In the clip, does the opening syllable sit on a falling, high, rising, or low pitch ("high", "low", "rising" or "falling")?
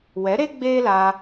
rising